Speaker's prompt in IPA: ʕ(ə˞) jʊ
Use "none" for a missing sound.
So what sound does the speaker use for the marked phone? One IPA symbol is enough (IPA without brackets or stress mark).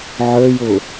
ə˞